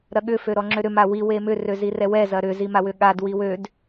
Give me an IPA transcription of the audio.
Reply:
ɾɐɠʏ føɾɔŋ͡ǁøɾʏ mawi wemʏ røzirɛwɛ zɐɾʏ zimawʏɠad wiwød

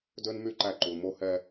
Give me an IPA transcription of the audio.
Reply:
dø˦nmy˦˨ǃæ˦˨ǃu˨l mo˦ hɛ˦

